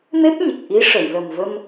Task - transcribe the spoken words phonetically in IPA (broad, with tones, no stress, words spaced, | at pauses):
me˦˥p̚ɲə˨˩k̚ ʔi˧˥ ʂə˨˩˨jlə˨˩mvə˧m